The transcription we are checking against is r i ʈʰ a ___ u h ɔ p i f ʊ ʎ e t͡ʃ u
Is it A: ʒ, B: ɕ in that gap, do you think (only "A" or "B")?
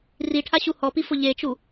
B